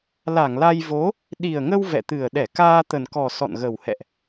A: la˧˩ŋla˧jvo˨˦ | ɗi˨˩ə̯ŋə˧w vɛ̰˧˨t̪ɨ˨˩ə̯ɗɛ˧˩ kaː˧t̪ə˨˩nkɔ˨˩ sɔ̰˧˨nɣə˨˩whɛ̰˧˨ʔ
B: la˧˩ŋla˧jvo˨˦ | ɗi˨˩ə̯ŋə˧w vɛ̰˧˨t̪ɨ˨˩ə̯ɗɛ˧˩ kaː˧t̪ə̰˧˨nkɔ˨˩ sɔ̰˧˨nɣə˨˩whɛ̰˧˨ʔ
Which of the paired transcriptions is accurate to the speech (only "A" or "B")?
A